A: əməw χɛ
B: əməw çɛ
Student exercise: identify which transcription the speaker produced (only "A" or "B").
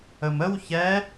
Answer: B